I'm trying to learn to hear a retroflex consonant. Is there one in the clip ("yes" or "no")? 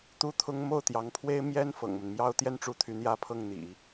yes